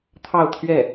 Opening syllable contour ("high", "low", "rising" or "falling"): falling